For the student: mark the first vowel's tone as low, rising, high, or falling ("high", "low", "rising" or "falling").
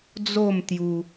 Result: falling